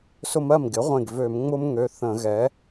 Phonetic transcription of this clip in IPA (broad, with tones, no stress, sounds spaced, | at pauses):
s ʊ˥ m ɜ˥˩ m ɡ ɪ˩˥ ʁʷ ẽ˧˩ ɡ v ø˧˩˧ m ŋ͡m ʊ˥ m ŋ ø˩˧˩ θ ə̃˧˩˧ ɣ ɛ˩˥